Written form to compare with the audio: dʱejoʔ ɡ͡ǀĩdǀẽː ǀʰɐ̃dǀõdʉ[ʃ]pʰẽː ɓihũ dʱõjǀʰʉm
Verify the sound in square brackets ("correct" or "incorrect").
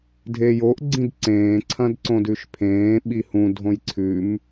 correct